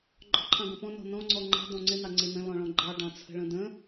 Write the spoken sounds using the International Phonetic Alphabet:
ɡ͡ǃ ɔ̤ ǃʰ ɑ̃ ɡ ə̃ p ɔ̃ n ɔ̤ n ɔ̃ ŋ͡ǀ ɔ ŋ͡ǃ ə̤ d ɔ̃ ŋ͡ǀ ɪ n ɑ ŋ͡ǀ ɪ n ə̃ l ɔ̃ ɭ ɔ̃ ɡ͡ǃ ɑ ɖ ɑ̃ t͡sʰ ə̤ ɭ ə̃ d ə̃

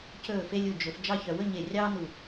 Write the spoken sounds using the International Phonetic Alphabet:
c ɵː˧˩ f e˧ lʲ u˧˩ d͡ʒ ɵ˩˧ f d͡ʒ ɑ˥˧ ç œ˧ w ɵ˥˧ ɲ e˧˩ rʲ ɑː˥ n u˧˩

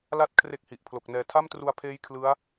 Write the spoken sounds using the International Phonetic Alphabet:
l a˥˩ t̚ kʰ r e˥˩ k̚ h i˨˩ ʔ pʰ l o˨˩ k̚ n ɛː˧ tʰ a˥˩ m t r u˧ a̯ pʰ eː˦˥ j kʰ l ɯ˦˥ a̯

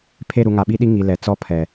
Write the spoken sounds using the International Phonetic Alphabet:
pʰ e˦˨ ɾ u˨ ŋ a˨ ɓ i˦ ɗ i˦ ŋ i˨ l ɛ˨ t͡s ɔ˦ pʰ ɛ˨

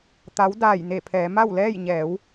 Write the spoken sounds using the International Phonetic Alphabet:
t̪ a˧˥ w d aː˧˩ j n e˧˩ pʰ ɛː˩˧ m a˥˨ w l ɛː˥˨ j ɲ ɛː˩˧ w

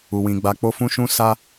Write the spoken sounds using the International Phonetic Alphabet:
u˨ w ĩ˨ ɡ͡b a˧ k͡p o˦ f ũ˦ ʃ ũ˦ s a˦

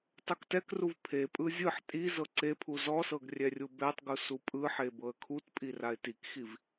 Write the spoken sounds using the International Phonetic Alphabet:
tˤ u k t ɛ k r u v pʰ e pʼ ɯ zʲ ɯ ħ tʼ i z ɤ ǀ e pʰ u z ɔ s ɤ ɡ rʲ ɛ rʲ u b ɛ tˤ ɡ u s u pʼ ɯ ħ e b ɤ ə̯ kʰ u t pʼ i r a ɪ̯ t i k x i v

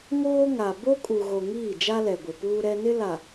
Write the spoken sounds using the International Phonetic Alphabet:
ŋ oː˦ ŋ a˨ b o˦ kʼ u˨ ɣ o˨ ŋ iː˦˨ d͡ʒ a˦ l ɛ˨ ɡʷ ɪ˨ p uː˦ ɾ ɛ˦ n ɪ˦ l a˨

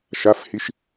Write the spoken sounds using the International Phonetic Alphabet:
ʃ a f h i ʃ

